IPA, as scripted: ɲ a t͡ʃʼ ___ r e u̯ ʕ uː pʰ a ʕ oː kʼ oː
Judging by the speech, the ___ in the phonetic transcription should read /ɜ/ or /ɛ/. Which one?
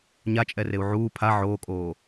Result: ɛ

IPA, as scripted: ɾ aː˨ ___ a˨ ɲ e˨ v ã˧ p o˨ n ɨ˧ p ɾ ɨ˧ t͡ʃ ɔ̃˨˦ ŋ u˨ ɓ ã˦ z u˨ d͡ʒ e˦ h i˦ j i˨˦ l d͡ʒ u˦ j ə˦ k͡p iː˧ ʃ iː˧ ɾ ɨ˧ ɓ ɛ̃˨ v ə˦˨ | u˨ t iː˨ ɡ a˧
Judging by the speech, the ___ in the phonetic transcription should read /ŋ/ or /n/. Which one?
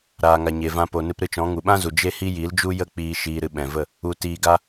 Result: ŋ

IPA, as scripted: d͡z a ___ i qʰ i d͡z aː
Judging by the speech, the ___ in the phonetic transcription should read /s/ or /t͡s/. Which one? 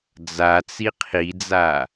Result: t͡s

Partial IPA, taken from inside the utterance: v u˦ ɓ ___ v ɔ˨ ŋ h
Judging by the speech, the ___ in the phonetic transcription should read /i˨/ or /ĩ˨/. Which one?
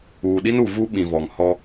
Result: ĩ˨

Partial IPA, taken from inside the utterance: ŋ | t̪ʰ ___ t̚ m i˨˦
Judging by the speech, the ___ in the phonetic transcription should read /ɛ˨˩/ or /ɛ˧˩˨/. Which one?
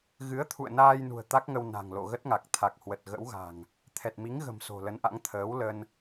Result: ɛ˨˩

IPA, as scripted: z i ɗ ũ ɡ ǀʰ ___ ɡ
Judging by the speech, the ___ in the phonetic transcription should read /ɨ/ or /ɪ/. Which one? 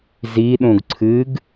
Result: ɨ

